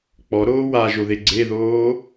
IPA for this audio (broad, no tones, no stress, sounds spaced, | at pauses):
k͡p ɔ ɾ oː w a ʒ o ð e ɡ͡ǀ e ð oː